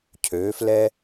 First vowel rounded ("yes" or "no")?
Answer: yes